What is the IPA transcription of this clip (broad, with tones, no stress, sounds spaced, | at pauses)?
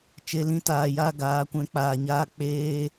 t͡ʃ e˧ l ĩ˧ t aː˨ j a˦ ɡ aː˨˦ kʷ ɛ̃˨˦ k͡p aː˨ ɲ aː˧ k͡p eː˧